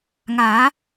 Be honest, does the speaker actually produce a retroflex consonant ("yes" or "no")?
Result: no